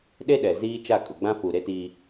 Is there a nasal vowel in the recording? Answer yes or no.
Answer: yes